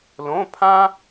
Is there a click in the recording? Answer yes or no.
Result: no